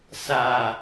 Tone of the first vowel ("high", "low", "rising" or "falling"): low